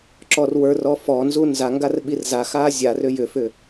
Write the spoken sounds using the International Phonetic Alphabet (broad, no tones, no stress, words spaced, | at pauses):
ǁɔrwə˞rɔ fɔnzu nzaŋɡar ɓirzaxa zʲarʏ jʏfʏ